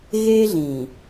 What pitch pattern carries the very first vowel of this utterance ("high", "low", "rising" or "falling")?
high